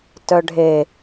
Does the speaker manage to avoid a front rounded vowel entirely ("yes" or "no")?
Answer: no